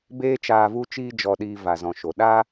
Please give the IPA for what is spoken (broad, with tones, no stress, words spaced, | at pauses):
beː˦t͡ʃaː˧vu˦t͡ʃiː˦ d͡ʒɔ˨ɗiː˨ va˨zɔ̃˨ʃo˨ ɗa˦